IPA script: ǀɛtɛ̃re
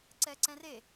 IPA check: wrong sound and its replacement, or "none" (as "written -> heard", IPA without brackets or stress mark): t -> ǀ